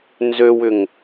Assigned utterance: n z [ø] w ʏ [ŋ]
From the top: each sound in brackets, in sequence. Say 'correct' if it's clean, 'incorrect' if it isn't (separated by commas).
correct, correct